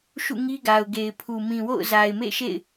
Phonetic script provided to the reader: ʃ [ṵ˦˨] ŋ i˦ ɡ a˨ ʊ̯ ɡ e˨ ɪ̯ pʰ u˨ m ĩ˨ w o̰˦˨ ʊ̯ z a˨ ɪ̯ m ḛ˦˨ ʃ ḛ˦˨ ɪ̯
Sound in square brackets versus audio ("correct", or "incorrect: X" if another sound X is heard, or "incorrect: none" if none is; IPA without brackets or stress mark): correct